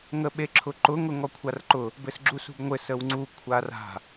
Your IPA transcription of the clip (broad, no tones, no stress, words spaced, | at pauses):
ŋəɓeǁʰʊǃʊ ŋʊŋɔkʷʰarǃʊ | bɘsɡ͡ǁusṳbŋʷɘ səwŋ͡ǀu kʷʰara̤